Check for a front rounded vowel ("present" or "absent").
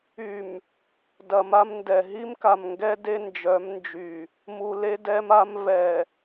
present